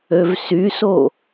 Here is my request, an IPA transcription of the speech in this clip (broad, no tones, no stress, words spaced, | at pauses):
øvsyso